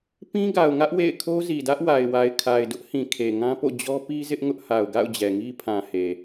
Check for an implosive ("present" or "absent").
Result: absent